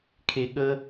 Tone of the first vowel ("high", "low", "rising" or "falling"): low